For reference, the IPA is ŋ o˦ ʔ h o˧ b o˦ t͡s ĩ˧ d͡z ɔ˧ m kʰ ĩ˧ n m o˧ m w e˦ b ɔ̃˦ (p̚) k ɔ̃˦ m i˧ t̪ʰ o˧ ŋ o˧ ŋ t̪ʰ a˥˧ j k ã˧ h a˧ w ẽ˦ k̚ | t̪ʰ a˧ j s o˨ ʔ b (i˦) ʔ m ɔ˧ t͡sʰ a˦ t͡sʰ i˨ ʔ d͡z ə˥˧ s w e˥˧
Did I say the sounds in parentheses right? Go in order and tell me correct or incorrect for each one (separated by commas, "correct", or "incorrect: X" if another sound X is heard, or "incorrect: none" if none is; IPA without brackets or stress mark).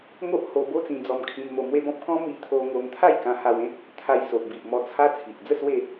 correct, incorrect: i˨